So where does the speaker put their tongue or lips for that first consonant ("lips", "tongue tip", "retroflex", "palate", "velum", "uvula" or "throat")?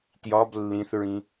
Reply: tongue tip